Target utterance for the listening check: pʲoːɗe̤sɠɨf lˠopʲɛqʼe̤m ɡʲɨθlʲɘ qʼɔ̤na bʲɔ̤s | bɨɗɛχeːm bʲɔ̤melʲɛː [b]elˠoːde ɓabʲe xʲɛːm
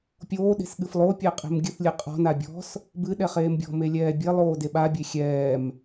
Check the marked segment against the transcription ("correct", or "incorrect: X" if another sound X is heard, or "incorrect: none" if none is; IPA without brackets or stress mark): incorrect: bʲ